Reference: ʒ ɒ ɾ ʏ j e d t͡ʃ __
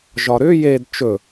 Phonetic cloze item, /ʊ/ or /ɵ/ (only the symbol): ɵ